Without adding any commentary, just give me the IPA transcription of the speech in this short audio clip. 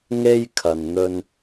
ŋ e˥ j kʰ ɐ˨ n n̪ ɵ˧ n

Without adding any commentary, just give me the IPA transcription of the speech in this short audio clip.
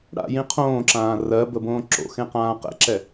ɽ a̰ j ĩ qʰ õː ǁ ãː r ɜ b ə b õː ǁ o̰ x ẽ q ãː q ɛ̰ ǁ ɛ

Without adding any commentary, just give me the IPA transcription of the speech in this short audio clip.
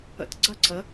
ə̰ t ɡ͡ǀ ɐ ǀ ə

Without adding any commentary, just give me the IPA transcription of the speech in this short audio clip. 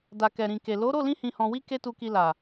d a˨ k ɛ˨ ɾ ĩ˨ k e˨ l o˨˦ ɾ o˦˨ l ĩ˧ h ĩ˨ h ɔ̃˨ w i˧ k e˦ t u˧ k i˧ l a˨

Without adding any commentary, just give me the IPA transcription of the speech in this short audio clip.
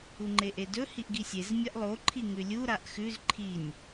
u ŋ͡ǃ e ʔ e d ɵ h i ʔ ɡ i sʲ e z mʲ a ʔ lˠ o ǃʰ i ŋ ʉ lʲ u ɾ a ʔ x ʉ z ǃʰ i nʲ

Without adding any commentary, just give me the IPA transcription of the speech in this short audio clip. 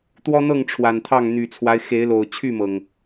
t̪ w ɔ˦ n̪ ɤ˥˨ ŋ ʈ͡ʂʰ w a˨˩ n t̪ʰ ɑ˥˨ ŋ n̪ y˨˩ t͡sʰ w a˦ ɪ̯ x e˨˦ ɪ̯ l o˨˩ ʊ̯ t͡ɕʰ y˥˨ m ɤ˩ ŋ

